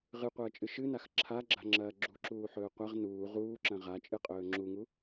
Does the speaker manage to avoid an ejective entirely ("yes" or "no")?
no